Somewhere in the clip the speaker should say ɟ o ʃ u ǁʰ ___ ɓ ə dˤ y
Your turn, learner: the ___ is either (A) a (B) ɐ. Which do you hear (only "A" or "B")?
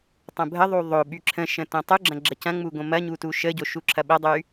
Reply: B